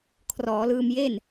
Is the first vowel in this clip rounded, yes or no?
yes